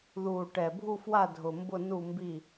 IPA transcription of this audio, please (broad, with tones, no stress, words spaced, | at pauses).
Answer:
ðuː˨˩ʈɛ˨˩bʱu˦˨fwa˦˨ dʱʊ˨˩mbʊ˦˨ nu˦˨mbi˦˨